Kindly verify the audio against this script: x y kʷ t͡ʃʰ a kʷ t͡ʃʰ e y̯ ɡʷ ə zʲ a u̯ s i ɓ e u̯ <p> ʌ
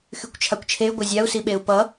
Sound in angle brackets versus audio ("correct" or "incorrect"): correct